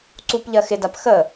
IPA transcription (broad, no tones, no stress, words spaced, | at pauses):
ǀup ʎɜxɪdap xə